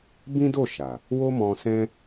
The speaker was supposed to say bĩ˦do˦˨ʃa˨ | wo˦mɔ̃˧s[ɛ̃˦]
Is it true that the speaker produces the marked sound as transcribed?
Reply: yes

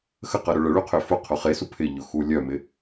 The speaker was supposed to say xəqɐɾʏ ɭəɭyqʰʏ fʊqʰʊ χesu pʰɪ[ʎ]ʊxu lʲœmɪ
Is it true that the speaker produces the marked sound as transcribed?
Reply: yes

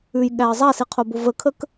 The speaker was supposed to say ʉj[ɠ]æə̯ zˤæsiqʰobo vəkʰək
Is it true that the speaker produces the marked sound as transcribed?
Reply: yes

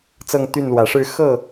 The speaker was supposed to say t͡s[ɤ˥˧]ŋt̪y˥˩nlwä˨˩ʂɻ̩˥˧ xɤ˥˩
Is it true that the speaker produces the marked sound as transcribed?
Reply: yes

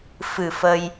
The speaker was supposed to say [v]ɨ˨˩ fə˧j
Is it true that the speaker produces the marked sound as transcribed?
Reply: no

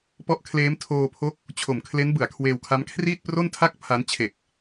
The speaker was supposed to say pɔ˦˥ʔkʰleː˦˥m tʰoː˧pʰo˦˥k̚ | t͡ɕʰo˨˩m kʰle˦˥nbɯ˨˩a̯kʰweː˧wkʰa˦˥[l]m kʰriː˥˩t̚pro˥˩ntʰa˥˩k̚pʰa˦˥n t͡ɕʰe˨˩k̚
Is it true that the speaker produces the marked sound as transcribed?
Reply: no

